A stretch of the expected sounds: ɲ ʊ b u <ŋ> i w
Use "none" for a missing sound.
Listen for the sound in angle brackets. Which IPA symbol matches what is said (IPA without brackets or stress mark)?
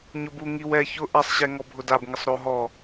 ŋ